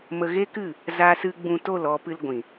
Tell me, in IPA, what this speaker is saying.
m ə˧ ɣ e˦ k ɨ˦˨ | z a˦ s ɨ˦ ɡ͡b ũ˧ t o˦˨ l ɔ˧ p ɨ˧ l ɡʷ ĩ˨

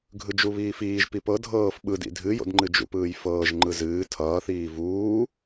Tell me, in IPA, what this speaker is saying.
ɡʱ ɯ d͡ʒ u β iː f iː ʒ p i p ɤ dʱ ɤː f ɓ ɯ d ḭ dʱ ɨ j o̰ d ŋ͡ǃ ɨ d͡ʒ ṵ p ɯː j f ɤː ʒ ŋ͡ǃ ɯ z ɨː tʰ ʌː θ iː v uː

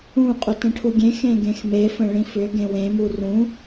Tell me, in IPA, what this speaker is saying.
ũ qʼ ʏ t ə̃ ʈʰ u ɡʲ ẽ x ẽ ɡ ẽ x m e f ə̃ ɭ ĩ f ʏ ɡ ẽ w ẽ m u r ũ

